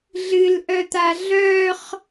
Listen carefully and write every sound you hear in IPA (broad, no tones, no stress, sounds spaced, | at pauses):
ɮ ɨ l ʔ œ t̪ a ɮ œ χ